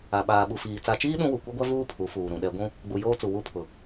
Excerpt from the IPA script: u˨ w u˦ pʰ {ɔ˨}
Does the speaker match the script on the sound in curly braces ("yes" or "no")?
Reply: no